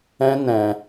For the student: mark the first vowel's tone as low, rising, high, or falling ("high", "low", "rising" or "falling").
high